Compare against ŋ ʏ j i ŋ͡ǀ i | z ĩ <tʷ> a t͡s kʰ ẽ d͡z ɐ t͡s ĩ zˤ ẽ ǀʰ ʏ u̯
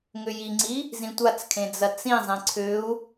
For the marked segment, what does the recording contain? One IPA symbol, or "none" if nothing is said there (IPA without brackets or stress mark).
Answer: tʷ